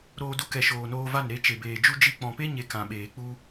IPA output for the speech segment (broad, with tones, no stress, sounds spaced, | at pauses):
ɾ oː˧ d u˧ k ɛ˨ ʃ oː˨ n oː˧ v a˦˨ n ɾ e˧ t͡ʃ e˨ b eː˨ d͡ʒ u˦ d͡ʒ i˦ k͡p ɔ̃˨ p e˦ ɲ e˨˦ k ã˨ ɓ eː˨ k͡p u˦